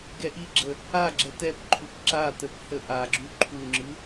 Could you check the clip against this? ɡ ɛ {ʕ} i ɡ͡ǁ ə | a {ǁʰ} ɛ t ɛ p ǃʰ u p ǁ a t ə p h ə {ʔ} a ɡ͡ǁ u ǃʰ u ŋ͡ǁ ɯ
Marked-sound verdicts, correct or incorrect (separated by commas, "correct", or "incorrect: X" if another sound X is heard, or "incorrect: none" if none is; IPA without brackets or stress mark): incorrect: ʔ, incorrect: ɡ͡ǁ, correct